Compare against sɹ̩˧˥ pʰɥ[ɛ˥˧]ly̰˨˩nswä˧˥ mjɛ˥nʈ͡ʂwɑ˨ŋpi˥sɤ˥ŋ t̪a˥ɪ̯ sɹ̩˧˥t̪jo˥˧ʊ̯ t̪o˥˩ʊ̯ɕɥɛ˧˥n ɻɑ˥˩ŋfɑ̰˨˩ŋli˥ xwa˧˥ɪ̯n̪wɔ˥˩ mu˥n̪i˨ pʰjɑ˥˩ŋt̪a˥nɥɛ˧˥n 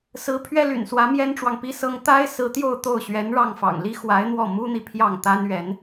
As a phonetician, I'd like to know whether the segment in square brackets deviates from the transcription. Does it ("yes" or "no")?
yes